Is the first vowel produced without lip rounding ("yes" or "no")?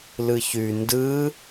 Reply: yes